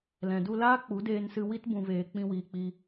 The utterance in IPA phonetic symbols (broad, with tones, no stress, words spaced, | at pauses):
lɛ̃˨du˧laː˦ k͡pu˨˦deː˧nsɨ˧ wi˧tbũ˨veː˨ k͡pĩ˧wiː˨k͡pi˧